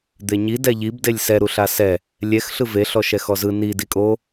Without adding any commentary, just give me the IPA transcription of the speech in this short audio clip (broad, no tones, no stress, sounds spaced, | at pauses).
d̪ e ɲ i d ɛ ʎ i b d e lʲ s ɛ ɾ u ɬ a s ɛ | lʲ ɛ x ɬ ɯ v e ɬ ɔ ʃ ɛ x ɔ z ɯ n i d i kʼ o